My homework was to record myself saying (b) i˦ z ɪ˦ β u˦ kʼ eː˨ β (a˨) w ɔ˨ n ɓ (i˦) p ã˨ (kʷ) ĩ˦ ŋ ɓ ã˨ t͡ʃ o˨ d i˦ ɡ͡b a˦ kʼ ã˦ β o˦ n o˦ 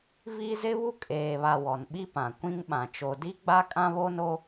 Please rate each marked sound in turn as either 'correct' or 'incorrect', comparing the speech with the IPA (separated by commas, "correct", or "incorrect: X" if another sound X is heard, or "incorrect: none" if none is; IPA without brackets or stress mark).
incorrect: v, correct, correct, correct